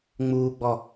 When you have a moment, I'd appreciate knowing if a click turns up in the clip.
no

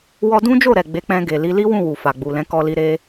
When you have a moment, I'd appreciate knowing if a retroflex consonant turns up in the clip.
no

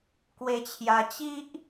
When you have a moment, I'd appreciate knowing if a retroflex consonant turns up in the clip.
no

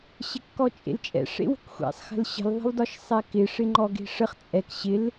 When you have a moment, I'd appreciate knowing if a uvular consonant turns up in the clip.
yes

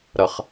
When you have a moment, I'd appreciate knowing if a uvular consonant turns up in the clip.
yes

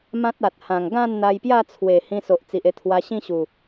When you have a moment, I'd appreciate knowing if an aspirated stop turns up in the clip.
yes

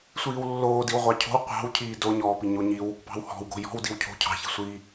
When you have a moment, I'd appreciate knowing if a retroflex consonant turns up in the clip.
no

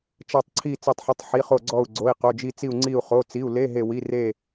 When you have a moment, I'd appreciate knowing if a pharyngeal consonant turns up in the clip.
yes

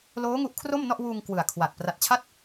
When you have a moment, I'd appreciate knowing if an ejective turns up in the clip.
no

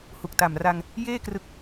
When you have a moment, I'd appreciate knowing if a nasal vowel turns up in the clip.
no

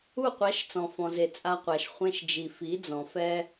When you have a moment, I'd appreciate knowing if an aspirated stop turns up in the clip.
no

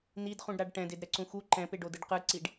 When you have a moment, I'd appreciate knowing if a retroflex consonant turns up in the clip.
yes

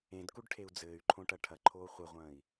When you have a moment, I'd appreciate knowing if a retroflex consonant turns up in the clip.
yes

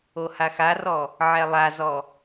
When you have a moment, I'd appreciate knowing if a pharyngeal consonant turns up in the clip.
yes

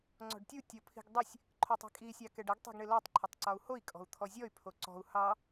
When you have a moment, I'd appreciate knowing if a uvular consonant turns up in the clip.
no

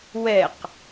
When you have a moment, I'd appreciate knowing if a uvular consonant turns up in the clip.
yes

